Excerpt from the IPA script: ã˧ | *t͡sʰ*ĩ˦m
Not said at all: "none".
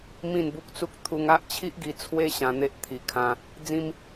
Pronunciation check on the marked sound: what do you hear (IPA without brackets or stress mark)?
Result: d͡z